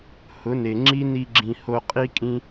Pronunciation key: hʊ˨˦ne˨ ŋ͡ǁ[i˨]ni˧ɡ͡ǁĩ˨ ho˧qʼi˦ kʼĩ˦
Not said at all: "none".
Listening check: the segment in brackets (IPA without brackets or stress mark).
i˦